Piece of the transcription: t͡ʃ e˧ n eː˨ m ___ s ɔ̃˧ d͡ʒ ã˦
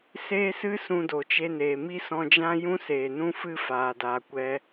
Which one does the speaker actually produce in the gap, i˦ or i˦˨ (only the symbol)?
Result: i˦